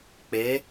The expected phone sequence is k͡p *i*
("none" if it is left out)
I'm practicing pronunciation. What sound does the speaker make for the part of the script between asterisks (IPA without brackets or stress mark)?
e